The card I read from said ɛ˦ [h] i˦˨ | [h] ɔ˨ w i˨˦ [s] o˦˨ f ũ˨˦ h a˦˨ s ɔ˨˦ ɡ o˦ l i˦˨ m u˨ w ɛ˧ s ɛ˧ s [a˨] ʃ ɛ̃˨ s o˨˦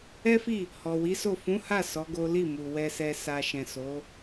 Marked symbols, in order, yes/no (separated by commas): no, yes, yes, yes